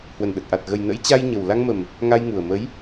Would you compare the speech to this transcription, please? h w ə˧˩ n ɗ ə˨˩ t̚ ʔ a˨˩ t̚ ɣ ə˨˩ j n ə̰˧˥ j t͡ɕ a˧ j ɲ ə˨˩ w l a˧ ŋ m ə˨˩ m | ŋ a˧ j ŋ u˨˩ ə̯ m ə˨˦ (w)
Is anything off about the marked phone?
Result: yes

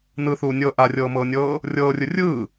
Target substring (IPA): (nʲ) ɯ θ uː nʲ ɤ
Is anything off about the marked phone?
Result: yes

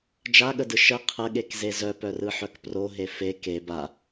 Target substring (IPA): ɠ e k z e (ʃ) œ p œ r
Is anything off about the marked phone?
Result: yes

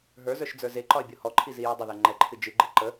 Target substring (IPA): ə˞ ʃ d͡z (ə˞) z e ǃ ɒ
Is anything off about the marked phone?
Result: no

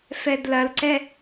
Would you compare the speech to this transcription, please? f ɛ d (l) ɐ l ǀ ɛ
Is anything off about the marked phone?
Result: no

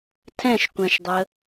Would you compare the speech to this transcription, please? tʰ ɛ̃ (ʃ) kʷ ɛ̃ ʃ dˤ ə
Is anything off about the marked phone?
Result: no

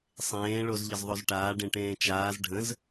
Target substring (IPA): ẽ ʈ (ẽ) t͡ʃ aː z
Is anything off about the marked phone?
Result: yes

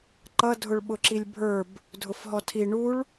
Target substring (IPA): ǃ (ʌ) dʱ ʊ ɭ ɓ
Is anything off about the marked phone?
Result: no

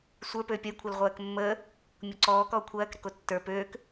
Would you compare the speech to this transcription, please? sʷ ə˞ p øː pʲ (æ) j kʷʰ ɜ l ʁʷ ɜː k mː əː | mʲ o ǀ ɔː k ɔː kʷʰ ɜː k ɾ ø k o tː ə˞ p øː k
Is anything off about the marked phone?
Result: yes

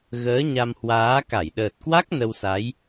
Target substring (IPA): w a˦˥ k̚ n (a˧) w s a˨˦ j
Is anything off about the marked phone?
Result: yes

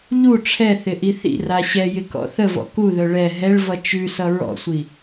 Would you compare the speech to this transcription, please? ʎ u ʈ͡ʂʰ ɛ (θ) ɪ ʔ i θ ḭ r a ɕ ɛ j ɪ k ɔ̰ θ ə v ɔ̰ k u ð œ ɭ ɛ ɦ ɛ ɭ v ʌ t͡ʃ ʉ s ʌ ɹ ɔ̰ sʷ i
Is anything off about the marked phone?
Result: no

